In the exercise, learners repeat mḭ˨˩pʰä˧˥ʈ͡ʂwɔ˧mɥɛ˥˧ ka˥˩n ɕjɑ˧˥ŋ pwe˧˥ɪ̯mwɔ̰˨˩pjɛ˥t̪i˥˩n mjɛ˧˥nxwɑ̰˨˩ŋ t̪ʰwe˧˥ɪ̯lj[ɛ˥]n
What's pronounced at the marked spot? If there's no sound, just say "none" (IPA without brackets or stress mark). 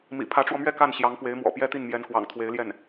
ɛ˥˩